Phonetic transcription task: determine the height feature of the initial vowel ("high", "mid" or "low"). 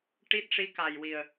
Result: high